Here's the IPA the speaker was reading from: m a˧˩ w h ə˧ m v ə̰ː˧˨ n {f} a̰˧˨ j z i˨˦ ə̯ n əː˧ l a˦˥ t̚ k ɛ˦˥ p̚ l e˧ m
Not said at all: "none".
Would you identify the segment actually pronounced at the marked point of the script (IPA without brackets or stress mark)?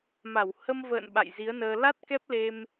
ɓ